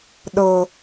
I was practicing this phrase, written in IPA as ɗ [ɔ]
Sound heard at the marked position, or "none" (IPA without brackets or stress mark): ɤ